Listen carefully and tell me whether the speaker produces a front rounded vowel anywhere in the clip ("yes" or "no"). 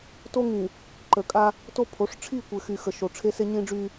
yes